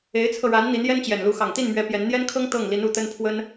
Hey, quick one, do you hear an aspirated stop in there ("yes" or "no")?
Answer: yes